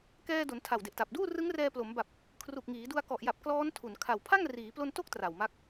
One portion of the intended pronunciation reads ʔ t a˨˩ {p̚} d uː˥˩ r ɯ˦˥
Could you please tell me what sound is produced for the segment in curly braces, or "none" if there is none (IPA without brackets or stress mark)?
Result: p̚